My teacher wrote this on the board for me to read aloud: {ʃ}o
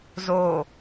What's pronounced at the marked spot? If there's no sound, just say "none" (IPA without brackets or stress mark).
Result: z